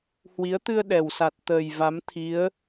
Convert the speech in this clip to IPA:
h w i˨˦ ə̯ t̪ ɨ˧ ə̯ ɗ ɛ˨˩ w s a˨˩ t̚ t̪ əː˨˩ j v a˨˦ m t̪ʰ i˨˦ ə̯

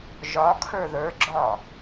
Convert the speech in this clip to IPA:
ʒ ɒ kʰ ə˞ ð ə˞ ɡ͡ǁ ɒ

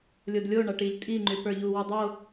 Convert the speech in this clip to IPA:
lʲ o d lʲ o ɳ a ʈ i ʎ tʼ i ŋ͡ǃ y p ə˞ ʎ u w u dˤ o

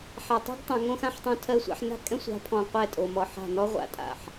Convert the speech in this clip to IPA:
ħ a˨ tˤ a̤˦ ɡ tˤ õ˨ ŋ õ˦ x ã˦ ħ tˤ õ˦ tʰ ɜ˦ sʷ a̰˦ ħ n a̤˦ kʼ ɛ̃˦ sʷ a̤˨˦ pʰ ɔ̃˨ qʷ ɛ˦˨ tʼ o˨ m ɔ˨ ħ a̤˦˨ n ɔ˦ ʁʷ a̰˨ tʼ a̰˨ ħ

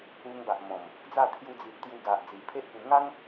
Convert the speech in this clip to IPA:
u˧ ŋ b a˨ ʔ m ɔ̃˨˩ m | d͡z a˥˧ t̪ʰ j u˧ d͡z i˨ t̚ t̪ j u˧ ɡ a˨ ʔ d͡z i˨˩ pʰ e˦ ʔ p u˧ ŋ a˦ ŋ

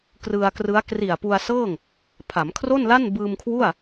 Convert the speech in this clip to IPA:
k r ɯ˧ a̯ k r ɯ˦˥ a̯ k r i˨˩ a̯ p u˧ a̯ s ɤː˥˩ ŋ | pʰ a˩˦ m kʰ r o˥˩ n l a˥˩ n b ɯː˧ m kʰ w u˥˩ a̯

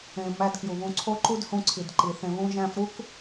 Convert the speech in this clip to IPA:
ẽ˨ m æ˧ d k j u˨ β ũ˧ ǀʰ o˦ ǃ u˦ d h ũ˧ ǀʰ i˨ d ǃ i˨ θ ẽ˧ β ũ˦ ʒ æ̃˧ f ɾ u˦ k

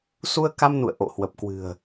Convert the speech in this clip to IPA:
s u˧ ə̯ k a˧ m n ṵ˧˨ ə̯ ʔ o̰˧˨ h w ə˨˩ p̚ k w ɨ̤˨˩ ə̯

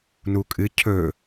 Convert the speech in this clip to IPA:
n u kʼ ɨ cʰ ɵ

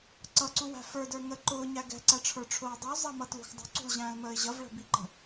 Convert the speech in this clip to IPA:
ǀ ʌ ǀ u w æ̤ f ə˞ d ə˞ ŋ ə ǃ ʊː ɲ æ ɡ ɛ̤ ǀ æ ʈ͡ʂʰ ə˞ ʈ͡ʂʰ ʊː ɪ̯ dˤ u zˤ ʌ m ʌ t l ṳ x dˤ ṳ ǀ ṳ l ʑ æ̃ː l m əː ɪ̯ ʑ ʌ v ɭ ə̤ b i ǃ ə̤

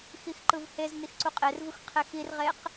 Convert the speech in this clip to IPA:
x i x ǃ ɯ v h e z n i x ǀ u qʼ e r v u x qʰ e x i r ʁ e q

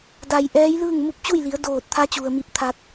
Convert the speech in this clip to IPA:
d a˧ j ʔ ɛː˧˥ j l ɯː˥˨ ŋ m u˧ p̚ t͡ɕ u˥˨ j l i˩˧ ə̯ d oː˧˩ t̚ t̪ʰ a˧˥ t͡ɕ u˩ ə̯ m i˧ p̚ t̪ʰ a˧ t̚

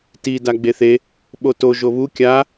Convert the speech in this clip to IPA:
t i d a ɡ͡b e θ e | ɓ o t o ʒ o β u kʲ a

